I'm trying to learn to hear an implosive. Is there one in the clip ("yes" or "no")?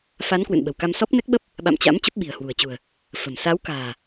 yes